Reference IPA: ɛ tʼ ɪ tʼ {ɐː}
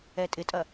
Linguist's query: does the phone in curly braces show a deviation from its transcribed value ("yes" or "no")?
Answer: yes